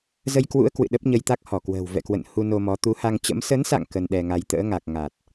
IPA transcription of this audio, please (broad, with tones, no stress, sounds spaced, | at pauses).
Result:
z ə˧ j k w ṵ˧˥ ə̯ k w ɨ̰˧˨ ɗ ə˦˥ p̚ ɲ ə˧ j t̪ a˦˥ k̚ h ɔ˧˩ k w ə̤ː˨˩ w v ɛ̰˧˨ k w ə̰˧˨ n h u˧ n o˧ m ɔ˨˦ t̪ u˨˦ h a˧ ŋ t͡ɕ ə̰˧˥ m s ə˨˦ n s a̰˧˨ ŋ k ə˧ n ɗ ɛ˧ ŋ a˧ j t̪ ə̰ː˧˥ ŋ a˨˩ k̚ ŋ a˨˩ t̚